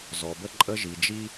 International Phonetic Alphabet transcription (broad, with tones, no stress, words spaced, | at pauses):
zɔ˨bə˦ǃʼə˦ ʒi˨d͡ʒi˦